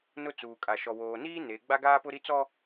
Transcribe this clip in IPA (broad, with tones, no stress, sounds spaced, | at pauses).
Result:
n ʊ˦ t͡s uː˨ kʼ a˨ ʃ ɔ˨ w oː˨ n iː˦ n e˨˦ ɡ͡b a˦ ɡ aː˦ p ʊ˦ ɾ i˦ t͡s ɔ˦